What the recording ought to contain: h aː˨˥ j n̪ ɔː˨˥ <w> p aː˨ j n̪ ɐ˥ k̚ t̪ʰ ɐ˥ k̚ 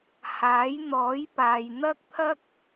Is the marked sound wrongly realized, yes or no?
yes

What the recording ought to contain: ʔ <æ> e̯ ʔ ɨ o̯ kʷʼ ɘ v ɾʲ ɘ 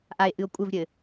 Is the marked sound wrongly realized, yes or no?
yes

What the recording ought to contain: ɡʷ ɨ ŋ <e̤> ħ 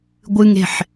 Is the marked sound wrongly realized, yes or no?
no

